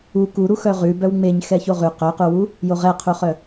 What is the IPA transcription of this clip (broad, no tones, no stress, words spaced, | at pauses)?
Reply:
u kuɾu xœʁʉ bœwŋ͡meɲxɛ çoʁʉ qœquwu | joʁɛqʰuχœ